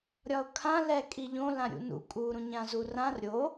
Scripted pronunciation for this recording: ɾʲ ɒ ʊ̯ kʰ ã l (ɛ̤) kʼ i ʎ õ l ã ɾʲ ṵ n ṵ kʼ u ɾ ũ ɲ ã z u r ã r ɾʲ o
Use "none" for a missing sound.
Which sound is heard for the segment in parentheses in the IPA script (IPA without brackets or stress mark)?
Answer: ɛ